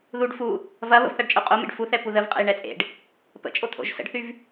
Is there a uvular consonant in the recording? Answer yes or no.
yes